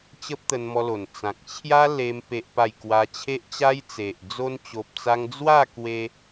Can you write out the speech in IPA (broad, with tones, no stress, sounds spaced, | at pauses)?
t͡ɕ ə˦ p̚ t̪ ə˧ n m ɔ˧ l o˨˩ n t͡s ã˨ k̚ t͡ɕʰ j a˦ l e˧ m p e˦ ʔ p a˥˧ j k w a˦ t͡ɕʰ e˦ ʔ t͡ɕ a˦ j t͡s e˨ ʔ d͡z o˧ n t͡ɕ o˨ p̚ t͡s a˧ ŋ d͡z w a˥˧ k w e˧